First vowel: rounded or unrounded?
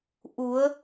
rounded